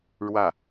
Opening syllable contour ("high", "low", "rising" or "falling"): falling